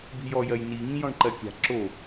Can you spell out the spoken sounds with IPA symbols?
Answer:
b i̤ j ɔ j ɜ j n i ŋ ĩ j ɔ̃ ɳ ǃ ɜ kʲ a̤ ǁ o

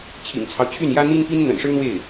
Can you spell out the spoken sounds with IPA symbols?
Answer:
t͡ɕʰ ḭ˨˩ ŋ t͡sʰ ɑ˦ ʊ̯ t͡ɕʰ y˥˩ n j ä˥ n̪ i˥ n p i˥ n n̪ ə̰˨˩ n ʂ ɻ̩˥ n̪ w e˥˩ ɪ̯

